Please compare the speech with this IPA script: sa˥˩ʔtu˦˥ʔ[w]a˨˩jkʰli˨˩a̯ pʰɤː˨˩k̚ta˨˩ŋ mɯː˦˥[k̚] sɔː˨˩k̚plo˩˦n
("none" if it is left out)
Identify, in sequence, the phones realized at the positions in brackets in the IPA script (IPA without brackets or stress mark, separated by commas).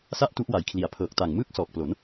w, k̚